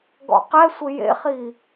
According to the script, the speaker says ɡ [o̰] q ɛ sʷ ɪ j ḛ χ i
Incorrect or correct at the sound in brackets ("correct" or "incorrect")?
incorrect